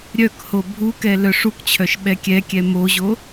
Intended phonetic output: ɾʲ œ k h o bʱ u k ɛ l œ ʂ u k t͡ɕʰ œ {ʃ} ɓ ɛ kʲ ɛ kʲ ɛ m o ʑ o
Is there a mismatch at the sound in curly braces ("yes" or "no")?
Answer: no